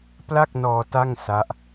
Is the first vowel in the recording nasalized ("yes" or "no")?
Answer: no